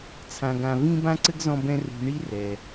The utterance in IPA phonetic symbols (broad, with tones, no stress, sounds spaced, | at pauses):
t͡sʰ ã˧ ɡ ã˧ v ĩ˥ b ã˥ ǀ ɘ˥ ɡ z ɔ̃˥ b ɛ̃˥ r ṳ˧ ɳ i˥ r ɛ˩